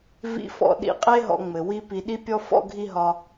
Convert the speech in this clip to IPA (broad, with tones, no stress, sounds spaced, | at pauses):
v ḭ˧ f ɔ̰˩ ɗ ḭ˧ qʼ e˥ ɦ ɔ̰˧ ŋ͡m ɘ˩ w i˥ p i˧ ɗ i˥ pʲ ɔ˥ f ɔ̰˥ ɡʱ i˥ ɦ ɒ˧